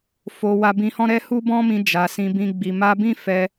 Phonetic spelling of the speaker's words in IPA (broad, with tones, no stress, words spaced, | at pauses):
fo˧ wa˧bĩ˧hɔ̃˦ ɾɛ˦hu˦bɔ̃˦mĩ˧ d͡ʒa˨sĩ˧bĩ˧ ɡ͡bi˨ma˧bĩ˦ fɛ˧